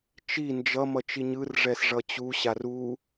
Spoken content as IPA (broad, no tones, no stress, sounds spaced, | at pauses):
t͡ʃ i n d͡ʒ ʌ m ʌ t͡ʃ i ɲ ɯ r ʐ ɛ s ʐ ʌ t͡ɕ u ɕ a r u